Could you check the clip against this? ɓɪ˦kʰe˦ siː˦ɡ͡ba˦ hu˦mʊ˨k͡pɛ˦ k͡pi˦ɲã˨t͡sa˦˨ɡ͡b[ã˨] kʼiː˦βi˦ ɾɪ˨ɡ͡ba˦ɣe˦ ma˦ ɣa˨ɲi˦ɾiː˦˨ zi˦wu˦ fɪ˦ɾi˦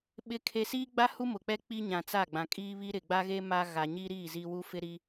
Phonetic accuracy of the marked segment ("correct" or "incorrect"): correct